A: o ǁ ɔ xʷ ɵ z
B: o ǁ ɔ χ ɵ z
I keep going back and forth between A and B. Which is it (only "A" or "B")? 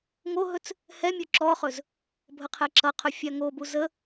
B